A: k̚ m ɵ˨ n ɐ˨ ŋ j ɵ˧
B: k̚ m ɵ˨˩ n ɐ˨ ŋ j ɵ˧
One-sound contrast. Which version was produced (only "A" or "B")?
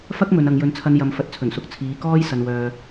A